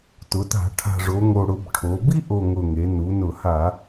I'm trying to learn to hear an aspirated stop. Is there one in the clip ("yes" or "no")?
yes